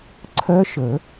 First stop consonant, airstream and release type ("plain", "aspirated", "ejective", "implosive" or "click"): click